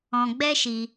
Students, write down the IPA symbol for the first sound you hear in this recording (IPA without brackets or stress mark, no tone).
ɔ̃